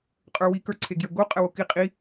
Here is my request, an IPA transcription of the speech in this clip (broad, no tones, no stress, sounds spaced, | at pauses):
qʼ ə˞ w i k ə˞ ǀʰ e ɡ j ə ɡ o qʼ ə w o k i qʼ i